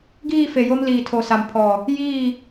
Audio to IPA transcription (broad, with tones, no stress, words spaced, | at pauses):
ɡiː˦˨fe˨jo˦m liː˨tʰo˨sa˨mpʰɔ˨ | jiː˦˨